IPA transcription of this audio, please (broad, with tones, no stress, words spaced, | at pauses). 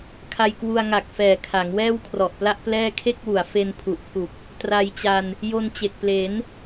kʰa˧jkwu˧a̯ŋa˨˩k̚fɛː˨˩ kʰa˩˦ŋwɛː˥˩wkʰrɔ˨˩ʔpla˥˩ʔ plɛː˥˩ kʰe˥˩k̚wu˩˦a̯fe˧n pʰu˨˩ʔpʰu˨˩k̚ | tra˧jt͡ɕa˧n | jo˧nt͡ɕe˨˩k̚ple˩˦n